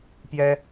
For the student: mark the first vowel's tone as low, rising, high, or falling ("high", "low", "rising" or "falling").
high